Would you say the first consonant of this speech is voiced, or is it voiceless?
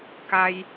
voiceless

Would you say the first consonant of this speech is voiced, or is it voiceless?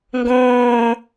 voiced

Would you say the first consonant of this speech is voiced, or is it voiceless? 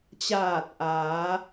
voiceless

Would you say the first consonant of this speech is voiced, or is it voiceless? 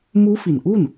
voiced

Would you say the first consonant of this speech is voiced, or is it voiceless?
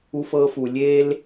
voiceless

